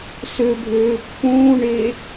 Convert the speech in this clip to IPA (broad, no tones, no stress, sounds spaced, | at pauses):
s ø bʱ øː pː ũː ɳ e